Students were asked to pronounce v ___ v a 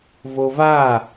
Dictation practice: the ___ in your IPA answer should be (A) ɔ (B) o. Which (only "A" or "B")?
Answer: B